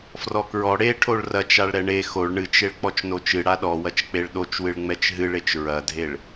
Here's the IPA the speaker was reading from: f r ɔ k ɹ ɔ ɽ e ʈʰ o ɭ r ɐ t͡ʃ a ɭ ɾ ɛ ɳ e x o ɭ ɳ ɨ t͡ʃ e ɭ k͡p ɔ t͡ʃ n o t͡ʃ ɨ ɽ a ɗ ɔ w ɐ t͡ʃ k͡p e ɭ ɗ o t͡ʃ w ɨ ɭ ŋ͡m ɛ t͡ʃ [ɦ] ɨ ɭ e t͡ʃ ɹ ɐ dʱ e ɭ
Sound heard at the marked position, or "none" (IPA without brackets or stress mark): ɦ